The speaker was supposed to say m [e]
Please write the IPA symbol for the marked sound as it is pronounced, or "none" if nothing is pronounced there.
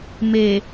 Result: e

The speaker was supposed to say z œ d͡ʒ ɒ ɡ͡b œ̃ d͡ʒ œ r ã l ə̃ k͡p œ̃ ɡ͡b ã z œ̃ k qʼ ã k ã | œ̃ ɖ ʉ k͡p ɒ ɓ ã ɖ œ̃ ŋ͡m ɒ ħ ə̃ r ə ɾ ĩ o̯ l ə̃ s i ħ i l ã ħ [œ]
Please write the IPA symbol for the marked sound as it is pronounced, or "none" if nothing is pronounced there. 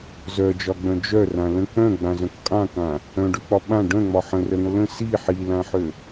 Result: ø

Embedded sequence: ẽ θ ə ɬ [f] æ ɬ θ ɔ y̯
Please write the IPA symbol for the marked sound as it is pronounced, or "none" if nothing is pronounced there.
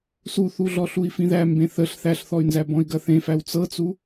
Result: θ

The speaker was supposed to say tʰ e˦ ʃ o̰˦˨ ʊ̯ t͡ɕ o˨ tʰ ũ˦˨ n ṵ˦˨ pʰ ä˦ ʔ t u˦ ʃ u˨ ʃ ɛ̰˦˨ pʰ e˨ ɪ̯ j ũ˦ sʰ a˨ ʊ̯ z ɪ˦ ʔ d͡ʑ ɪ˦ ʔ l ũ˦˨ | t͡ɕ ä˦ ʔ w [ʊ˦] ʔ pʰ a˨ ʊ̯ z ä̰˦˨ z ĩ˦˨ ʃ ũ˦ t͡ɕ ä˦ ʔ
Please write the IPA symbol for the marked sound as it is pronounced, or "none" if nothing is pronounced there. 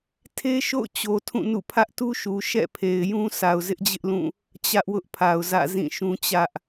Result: ʊ˦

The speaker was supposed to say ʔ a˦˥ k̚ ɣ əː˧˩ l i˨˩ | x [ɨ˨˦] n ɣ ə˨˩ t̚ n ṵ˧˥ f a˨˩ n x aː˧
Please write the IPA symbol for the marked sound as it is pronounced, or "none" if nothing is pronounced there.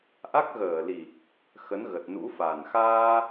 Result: ə˨˦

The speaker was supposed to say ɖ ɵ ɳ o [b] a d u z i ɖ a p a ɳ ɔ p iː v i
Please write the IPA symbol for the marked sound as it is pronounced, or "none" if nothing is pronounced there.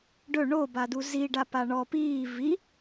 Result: b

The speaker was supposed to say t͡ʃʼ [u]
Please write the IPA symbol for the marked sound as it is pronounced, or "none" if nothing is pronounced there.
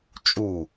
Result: u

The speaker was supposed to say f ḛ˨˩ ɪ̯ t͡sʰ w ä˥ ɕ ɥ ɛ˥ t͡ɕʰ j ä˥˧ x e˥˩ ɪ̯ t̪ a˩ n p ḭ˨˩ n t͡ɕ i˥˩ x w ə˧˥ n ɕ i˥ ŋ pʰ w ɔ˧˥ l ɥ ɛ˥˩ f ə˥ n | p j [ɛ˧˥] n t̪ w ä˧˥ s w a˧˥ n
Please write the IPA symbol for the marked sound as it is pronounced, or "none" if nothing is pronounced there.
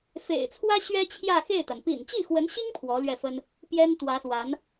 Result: ɛ˥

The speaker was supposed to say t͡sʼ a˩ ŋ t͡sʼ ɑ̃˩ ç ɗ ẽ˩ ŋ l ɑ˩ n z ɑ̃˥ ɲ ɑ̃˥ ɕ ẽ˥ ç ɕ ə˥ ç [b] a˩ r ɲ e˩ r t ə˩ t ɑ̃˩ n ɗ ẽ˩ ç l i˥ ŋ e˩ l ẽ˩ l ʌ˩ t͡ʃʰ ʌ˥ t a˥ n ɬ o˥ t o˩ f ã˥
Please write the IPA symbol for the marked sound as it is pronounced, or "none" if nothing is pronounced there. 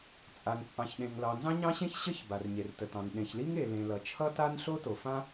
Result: b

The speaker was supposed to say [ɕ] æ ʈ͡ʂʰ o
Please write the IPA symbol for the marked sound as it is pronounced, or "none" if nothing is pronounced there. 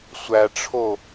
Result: sʷ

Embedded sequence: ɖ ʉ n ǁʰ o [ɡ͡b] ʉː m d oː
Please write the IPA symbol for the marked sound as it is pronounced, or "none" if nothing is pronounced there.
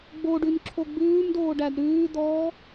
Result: ɡ͡b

